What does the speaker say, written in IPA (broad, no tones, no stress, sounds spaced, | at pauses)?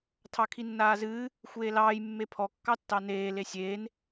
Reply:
tʰ ɑ kʰ i nː aː z ɨː | xʷ eː l ɑː j mː e pʰ ɔ kː ɑ tː ɑ n eː l e sʲ eː n